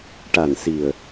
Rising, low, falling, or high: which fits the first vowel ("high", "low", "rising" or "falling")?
low